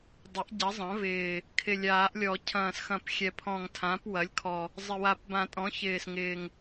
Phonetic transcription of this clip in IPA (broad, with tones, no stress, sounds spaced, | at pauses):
dˤ ɪ˩˥ ʔ ɟ ɐ˩˥ zˤ ɐ̃˩˥ v ɪː˨˩ | kʰ ɪ˨˩ lʲ aː˨˩˦ ʔ lʲ ɔ˨˩˦ cʰ ɐ̃ː˨˩ s x ɐ̃˨˩˦ p xʲ ɛ˨˩ pʰ ɔ̃˨˩ ŋ tʰ ã˩˥ p w ɐ˩˥ lʲ kʰ ɔ˨˩ | zˤ ɪ˨˩ w a˨˩˦ p b ã˨˩˦ tʼ ɔ̃˩˥ ç ɪː˨˩ s ŋ ɪː˨˩ ŋ